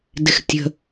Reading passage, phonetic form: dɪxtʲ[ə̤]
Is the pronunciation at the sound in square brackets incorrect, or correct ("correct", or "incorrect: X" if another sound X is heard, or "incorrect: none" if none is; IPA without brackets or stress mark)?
correct